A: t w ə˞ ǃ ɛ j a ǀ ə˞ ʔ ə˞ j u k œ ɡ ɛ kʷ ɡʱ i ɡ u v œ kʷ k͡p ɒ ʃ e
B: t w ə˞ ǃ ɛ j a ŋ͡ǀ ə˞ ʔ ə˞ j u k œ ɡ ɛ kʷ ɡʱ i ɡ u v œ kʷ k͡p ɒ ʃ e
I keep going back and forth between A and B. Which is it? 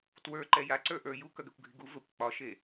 A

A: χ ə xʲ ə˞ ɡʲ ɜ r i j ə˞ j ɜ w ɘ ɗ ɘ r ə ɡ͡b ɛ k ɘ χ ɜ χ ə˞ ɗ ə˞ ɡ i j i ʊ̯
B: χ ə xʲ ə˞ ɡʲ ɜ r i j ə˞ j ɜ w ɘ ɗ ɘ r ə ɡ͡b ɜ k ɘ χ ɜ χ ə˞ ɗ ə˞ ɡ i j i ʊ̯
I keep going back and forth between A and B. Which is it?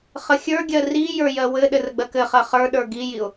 B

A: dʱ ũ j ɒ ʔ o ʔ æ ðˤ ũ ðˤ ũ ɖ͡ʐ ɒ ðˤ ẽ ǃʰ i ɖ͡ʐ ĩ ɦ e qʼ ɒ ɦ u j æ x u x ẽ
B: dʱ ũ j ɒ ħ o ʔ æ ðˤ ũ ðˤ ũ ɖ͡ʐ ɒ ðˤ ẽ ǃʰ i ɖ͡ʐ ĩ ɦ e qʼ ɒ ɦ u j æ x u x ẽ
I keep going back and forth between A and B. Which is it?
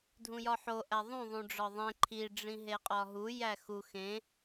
B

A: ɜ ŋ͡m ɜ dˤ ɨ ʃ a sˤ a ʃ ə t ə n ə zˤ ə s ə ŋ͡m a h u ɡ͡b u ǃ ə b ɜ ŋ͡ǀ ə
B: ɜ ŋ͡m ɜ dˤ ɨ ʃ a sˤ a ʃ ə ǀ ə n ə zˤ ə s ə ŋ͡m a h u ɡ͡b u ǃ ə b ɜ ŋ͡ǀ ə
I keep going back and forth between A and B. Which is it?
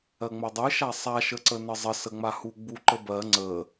B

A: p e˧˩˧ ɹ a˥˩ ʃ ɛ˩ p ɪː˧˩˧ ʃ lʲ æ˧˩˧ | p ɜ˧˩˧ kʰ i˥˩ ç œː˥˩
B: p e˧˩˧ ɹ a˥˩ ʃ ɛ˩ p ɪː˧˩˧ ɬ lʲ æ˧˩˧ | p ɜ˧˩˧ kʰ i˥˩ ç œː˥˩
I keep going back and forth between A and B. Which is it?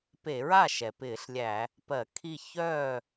B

